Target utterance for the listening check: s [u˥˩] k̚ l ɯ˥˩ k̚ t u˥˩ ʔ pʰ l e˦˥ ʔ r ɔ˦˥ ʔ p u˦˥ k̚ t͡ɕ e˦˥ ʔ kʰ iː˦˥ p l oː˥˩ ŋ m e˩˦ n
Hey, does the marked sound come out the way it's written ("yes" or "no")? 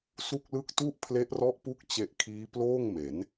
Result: yes